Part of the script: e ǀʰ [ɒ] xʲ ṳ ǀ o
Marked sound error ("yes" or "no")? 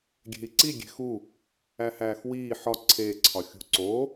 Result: no